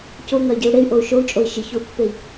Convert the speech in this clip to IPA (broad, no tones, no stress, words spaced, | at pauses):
coŋɐy̯ɟiu̯ ɽey̯ʔou̯ ʃou̯t͡ʃʼoi̯ ʃiçou̯pːei̯